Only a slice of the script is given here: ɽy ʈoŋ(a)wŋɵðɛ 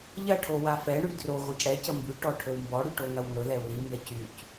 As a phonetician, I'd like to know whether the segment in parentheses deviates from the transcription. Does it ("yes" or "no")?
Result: yes